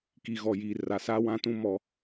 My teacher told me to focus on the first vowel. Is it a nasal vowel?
no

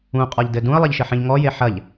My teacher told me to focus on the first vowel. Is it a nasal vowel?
yes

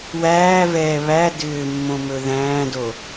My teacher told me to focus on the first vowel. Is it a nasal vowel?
no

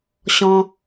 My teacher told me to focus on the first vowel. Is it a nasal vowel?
yes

